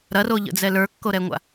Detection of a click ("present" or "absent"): absent